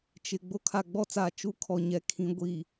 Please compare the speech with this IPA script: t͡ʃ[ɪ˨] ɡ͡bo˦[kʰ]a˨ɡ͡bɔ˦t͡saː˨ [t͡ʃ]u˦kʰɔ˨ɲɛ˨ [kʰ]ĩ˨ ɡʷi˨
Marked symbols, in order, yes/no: yes, yes, yes, yes

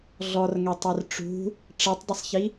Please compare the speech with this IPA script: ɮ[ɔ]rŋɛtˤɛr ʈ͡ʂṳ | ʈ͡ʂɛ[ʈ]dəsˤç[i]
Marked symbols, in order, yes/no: yes, no, yes

